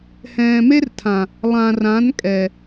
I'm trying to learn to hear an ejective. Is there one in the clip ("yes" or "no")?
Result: yes